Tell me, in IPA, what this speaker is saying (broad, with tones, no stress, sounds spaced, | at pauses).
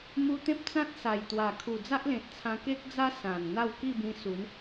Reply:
m u˧ t̪ ẽ˦ p̚ t͡s ã˦ t̚ s a˨˩ j t̪ w a˨˩ kʰ u˨˩ d͡z a˦ ʔ l ẽ˨ t̚ t͡sʰ ã˧ k e˦ k̚ d͡z a˦ s ã˨˩ n n̪ a˥˧ w k i˥˧ b ĩ˧ s u˨˦ n